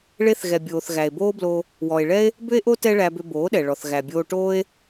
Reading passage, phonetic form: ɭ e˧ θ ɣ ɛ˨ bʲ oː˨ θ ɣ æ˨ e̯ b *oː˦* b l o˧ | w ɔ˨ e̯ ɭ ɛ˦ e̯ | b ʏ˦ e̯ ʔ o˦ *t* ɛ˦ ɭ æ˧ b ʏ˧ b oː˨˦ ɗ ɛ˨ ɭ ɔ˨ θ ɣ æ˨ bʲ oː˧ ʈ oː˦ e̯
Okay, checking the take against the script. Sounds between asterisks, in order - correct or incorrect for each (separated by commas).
correct, correct